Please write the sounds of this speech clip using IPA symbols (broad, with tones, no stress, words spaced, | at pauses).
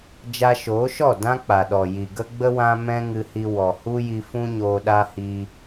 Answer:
d͡ʒa˧ʃoː˨˦ʃɔ˦˨ dã˦k͡pa˨ɗɔ˨ ji˨ɡə˦ɡ͡bə˦ wã˦mɛ̃˦ŋɨ˧hi˧ wɔ˨hu˦ji˧ fũ˦ɲoː˧ɗa˦ hiː˧